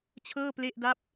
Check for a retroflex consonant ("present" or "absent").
absent